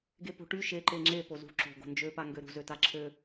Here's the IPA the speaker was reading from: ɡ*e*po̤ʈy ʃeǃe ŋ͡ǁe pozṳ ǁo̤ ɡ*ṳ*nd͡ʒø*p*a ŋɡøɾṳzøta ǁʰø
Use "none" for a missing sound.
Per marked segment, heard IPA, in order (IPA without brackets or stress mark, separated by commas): e, o̤, p